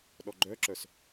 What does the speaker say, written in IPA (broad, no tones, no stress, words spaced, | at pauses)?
ɗɔɡ͡ǃœǁœs